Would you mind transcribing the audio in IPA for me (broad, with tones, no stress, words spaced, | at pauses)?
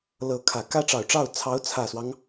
lɤ˧˥kʰä˨˩ kä˥ʈ͡ʂɑ˨˩ʊ̯ʈ͡ʂɑ˥˩ʊ̯ t͡sʰɑ˧˥ʊ̯t͡sʰä˨˩swɑ˦ŋ